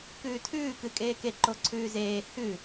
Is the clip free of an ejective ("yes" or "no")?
no